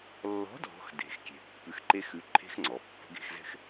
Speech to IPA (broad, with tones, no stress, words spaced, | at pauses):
lːɔ̤˨˥ dʱɔ̤˨˥xde̤˩˧xkʲe̤˩˧ pːʉ˨˥xǃe˦˥xʉ˨˥ǃʰe̤˦˥x ŋ͡ǀɔ˩˧pːə̤˦˥ɡe̤˥˧xzɛ̤˥˧x